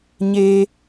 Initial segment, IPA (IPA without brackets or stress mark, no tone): ɲ